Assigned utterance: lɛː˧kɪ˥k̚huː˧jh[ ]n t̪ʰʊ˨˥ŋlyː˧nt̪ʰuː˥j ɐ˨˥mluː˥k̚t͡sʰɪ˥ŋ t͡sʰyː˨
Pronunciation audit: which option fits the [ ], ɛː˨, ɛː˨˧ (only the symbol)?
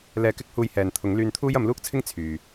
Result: ɛː˨